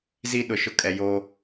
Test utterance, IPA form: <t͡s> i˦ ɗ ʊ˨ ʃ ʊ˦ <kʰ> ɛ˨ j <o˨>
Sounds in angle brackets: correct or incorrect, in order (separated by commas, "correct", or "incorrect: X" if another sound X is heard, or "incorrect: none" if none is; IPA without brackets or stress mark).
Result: incorrect: z, incorrect: kʼ, incorrect: o˦